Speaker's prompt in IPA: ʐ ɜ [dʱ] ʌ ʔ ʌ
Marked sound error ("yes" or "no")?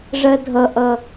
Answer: no